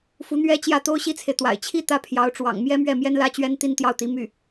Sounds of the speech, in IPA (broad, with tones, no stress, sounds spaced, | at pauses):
f u˧˥ n̪ ɥ ɛ˥ t͡ɕ j ä˥˩ t̪ o˥ ʊ̯ ɕ i˥ t͡sʰ e˨ ɪ̯ t̪ w a̰˨˩ ɪ̯ t͡ɕʰ i˥˧ t̪ ä˥˩ pʰ j ɑ˧˥ ʊ̯ ʈ͡ʂ w ɑ̰˨˩ ŋ m j ɛ˥ m ɥ ɛ˥˩ m j ɛ˥ n l ä˥ t͡ɕ ɥ ɛ˥ n t̪ i˥˧ n t̪ j ɑ˥˩ ʊ̯ t̪ i˧˥ m y˥˩